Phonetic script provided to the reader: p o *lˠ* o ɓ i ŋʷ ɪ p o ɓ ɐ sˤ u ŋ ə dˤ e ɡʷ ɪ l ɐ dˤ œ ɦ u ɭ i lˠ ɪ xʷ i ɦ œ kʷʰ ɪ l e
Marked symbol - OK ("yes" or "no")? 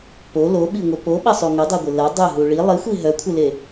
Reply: no